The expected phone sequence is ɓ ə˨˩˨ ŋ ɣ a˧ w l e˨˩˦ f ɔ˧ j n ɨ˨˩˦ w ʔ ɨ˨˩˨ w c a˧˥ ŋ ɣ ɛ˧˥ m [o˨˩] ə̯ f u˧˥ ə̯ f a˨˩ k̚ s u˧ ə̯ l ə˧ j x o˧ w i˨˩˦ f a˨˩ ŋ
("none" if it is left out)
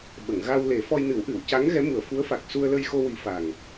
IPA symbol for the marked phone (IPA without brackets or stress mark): u˨˩